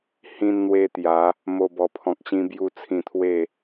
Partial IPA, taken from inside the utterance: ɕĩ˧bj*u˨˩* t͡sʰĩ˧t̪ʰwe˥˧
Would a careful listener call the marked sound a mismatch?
yes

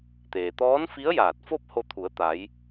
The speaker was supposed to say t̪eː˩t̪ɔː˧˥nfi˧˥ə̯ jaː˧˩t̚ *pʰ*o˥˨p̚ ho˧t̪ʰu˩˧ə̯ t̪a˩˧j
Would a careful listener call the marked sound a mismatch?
yes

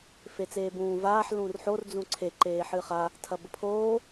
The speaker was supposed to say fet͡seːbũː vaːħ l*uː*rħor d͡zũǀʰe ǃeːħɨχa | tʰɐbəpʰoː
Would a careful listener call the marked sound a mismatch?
yes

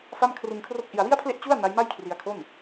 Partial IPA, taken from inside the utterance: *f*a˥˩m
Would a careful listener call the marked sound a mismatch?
no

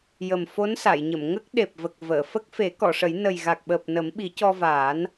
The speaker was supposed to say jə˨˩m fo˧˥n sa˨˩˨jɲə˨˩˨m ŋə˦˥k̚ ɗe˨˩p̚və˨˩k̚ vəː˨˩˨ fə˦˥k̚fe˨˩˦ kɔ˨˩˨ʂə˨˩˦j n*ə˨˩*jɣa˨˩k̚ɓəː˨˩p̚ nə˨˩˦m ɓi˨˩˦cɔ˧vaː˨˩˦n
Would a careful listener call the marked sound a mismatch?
no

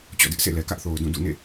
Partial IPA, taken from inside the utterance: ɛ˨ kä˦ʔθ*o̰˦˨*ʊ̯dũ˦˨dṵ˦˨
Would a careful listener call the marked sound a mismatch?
yes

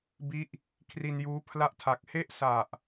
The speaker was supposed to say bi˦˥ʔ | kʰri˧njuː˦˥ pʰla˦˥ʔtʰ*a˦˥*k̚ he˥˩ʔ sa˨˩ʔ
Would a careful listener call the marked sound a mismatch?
yes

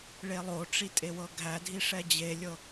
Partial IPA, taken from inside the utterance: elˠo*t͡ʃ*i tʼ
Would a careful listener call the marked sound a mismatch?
yes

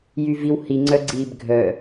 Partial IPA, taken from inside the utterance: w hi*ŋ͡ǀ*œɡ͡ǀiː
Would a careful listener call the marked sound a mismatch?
no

